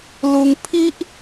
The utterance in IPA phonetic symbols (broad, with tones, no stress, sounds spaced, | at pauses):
l u˧ ŋ pʰ i˦ ʔ